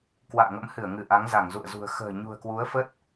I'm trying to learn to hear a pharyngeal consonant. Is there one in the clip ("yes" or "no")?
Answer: no